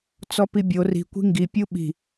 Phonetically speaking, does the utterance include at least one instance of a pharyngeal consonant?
no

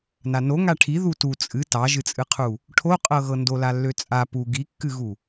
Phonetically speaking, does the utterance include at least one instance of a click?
no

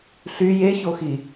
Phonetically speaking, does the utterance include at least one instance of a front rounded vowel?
yes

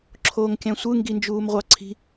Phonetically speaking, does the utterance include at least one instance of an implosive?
no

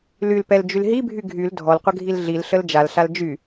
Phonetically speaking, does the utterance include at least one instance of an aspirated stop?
no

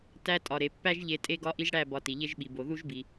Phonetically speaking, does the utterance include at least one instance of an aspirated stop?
no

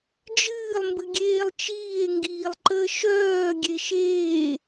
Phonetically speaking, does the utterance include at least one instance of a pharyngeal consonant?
no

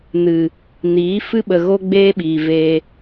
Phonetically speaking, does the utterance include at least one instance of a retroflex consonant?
no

